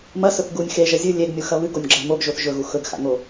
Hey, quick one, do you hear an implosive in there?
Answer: no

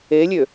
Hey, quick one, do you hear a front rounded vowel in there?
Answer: yes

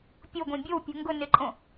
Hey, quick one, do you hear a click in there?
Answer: yes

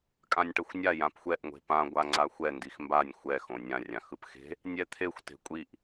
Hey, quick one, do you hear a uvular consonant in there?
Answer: no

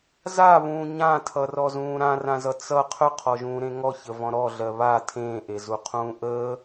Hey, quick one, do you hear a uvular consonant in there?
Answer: yes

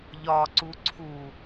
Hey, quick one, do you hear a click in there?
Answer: yes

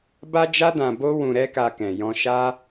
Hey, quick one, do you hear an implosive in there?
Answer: no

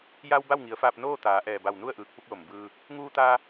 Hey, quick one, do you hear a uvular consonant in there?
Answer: no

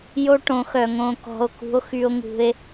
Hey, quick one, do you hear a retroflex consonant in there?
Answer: yes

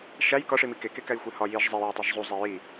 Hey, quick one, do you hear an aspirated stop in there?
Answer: no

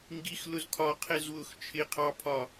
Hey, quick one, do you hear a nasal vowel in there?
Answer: no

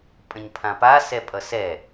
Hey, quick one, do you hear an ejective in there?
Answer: yes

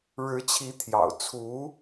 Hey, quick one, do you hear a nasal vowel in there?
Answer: no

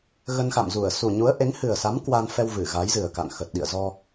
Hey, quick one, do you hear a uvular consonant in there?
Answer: no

